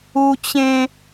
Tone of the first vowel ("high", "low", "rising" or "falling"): high